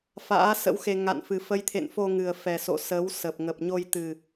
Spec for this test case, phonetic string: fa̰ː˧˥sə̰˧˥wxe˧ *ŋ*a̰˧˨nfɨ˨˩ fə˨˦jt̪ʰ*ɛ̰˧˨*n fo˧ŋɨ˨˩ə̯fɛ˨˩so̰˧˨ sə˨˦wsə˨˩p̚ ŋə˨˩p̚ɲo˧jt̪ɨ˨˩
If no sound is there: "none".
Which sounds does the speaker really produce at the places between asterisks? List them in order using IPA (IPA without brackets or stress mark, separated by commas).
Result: ŋ, ḛ˧˨